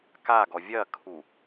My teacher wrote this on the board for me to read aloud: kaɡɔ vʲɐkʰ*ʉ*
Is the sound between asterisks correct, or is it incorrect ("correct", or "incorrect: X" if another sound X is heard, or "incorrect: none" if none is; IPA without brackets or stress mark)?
incorrect: u